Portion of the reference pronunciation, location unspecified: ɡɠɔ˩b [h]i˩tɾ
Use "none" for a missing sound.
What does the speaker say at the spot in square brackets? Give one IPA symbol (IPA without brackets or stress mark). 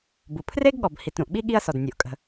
h